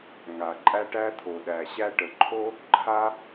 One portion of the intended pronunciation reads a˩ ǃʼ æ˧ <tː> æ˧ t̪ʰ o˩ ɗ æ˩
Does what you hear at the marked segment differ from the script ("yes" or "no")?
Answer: yes